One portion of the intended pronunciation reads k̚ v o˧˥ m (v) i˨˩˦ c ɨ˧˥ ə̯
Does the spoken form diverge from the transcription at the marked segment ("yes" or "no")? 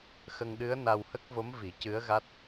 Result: no